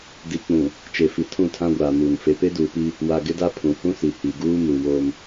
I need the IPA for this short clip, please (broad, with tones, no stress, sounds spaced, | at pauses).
d i˨ k͡p ũ˨ | t͡ʃ e˨ f i˨ tʰ ũ˦˨ tʰ ã˦ ɡʷ aː˨ m uː˨ n f e˨ p e˦ d uː˨ p i˦ | w a˨ ɡ ɪ˦ d a˦ pʰ ũ˨ h ũ˦ s i˨ h i˨ ɡ uː˦ m u˨ w o˦ m